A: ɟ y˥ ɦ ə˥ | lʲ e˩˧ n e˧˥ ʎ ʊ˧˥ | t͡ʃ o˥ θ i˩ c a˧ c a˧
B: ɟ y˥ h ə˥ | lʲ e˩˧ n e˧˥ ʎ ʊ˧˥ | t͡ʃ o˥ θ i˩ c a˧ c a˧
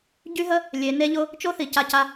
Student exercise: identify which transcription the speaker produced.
A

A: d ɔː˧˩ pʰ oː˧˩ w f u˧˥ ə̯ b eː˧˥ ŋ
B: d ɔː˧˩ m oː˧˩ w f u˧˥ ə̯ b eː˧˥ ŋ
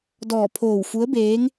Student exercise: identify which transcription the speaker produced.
A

